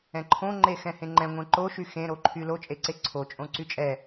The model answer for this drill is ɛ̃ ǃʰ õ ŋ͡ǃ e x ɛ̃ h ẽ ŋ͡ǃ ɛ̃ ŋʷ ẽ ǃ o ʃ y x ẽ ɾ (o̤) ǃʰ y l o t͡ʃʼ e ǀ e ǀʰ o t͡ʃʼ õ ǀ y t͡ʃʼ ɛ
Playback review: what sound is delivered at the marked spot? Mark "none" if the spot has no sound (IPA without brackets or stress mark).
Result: o